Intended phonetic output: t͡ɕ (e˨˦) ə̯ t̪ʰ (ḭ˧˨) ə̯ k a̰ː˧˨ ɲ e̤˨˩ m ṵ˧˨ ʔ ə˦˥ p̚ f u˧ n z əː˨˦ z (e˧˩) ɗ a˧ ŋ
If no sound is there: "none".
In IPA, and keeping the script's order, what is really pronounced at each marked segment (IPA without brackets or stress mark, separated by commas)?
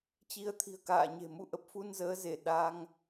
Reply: i˨˦, i̤˨˩, e˧˩